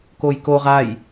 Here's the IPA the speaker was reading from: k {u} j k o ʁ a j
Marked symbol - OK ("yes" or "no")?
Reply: no